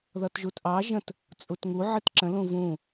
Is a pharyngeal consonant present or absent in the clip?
present